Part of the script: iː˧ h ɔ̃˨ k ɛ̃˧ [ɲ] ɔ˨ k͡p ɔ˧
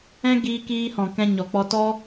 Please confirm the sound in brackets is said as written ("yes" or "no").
yes